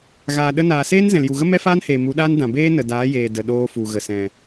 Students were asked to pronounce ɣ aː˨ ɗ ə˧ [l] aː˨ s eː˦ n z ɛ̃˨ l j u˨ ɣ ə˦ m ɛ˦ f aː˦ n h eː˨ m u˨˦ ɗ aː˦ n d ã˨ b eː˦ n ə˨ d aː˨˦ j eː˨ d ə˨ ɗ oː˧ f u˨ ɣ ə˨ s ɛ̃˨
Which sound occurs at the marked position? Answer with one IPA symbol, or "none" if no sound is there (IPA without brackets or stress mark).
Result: n